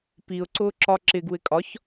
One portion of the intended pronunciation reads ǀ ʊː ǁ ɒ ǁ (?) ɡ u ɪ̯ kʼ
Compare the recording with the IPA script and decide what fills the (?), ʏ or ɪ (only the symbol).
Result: ɪ